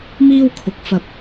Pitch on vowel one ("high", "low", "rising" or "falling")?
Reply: high